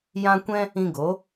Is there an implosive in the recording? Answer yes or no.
no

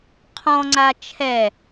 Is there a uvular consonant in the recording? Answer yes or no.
yes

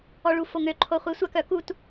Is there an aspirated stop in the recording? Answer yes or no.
yes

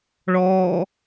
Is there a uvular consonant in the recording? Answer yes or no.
no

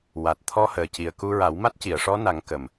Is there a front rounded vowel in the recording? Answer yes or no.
no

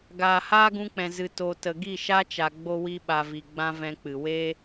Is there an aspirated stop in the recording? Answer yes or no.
no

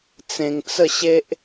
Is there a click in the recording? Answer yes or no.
no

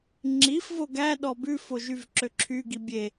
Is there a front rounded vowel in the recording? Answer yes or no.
yes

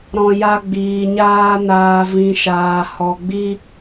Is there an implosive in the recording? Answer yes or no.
no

